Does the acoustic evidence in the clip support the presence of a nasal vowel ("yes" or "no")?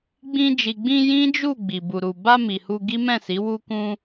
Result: yes